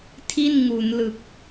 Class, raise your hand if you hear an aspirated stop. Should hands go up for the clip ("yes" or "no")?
yes